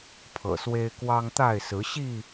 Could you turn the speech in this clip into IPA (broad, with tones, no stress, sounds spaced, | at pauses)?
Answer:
pʰ ɤ̰˨˩ s w e˦ ɪ̯ k w ɑ˦ ŋ t̪ a˥˨ ɪ̯ s ɹ̩˨˦ ɕ i˥˨